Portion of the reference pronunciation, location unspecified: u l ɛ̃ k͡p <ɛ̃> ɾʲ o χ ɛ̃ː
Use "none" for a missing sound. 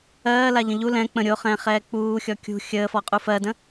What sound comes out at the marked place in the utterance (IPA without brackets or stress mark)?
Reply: ə̃